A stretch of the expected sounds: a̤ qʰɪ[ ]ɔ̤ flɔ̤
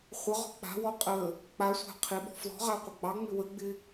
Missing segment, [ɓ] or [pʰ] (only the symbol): ɓ